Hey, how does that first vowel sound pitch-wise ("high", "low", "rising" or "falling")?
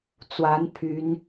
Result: rising